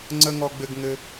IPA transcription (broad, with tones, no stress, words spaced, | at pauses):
ŋ͡ǀə˥ ŋɔ˥ɡ͡bɘ˥ɡŋɘ˥